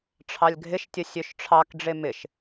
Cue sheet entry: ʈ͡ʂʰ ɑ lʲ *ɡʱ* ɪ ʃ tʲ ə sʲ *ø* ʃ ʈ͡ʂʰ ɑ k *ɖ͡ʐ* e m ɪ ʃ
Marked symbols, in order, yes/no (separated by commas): yes, yes, yes